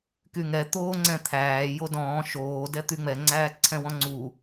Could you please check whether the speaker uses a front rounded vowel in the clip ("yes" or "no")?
yes